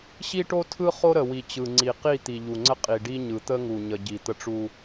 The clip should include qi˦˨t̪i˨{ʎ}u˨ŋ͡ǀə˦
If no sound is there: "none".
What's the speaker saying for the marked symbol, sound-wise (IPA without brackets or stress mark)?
ʎ